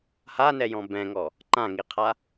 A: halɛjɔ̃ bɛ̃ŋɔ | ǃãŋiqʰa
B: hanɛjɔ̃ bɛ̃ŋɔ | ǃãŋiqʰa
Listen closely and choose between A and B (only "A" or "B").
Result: B